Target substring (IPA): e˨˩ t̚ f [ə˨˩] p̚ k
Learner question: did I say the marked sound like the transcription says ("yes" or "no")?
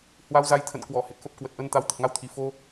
no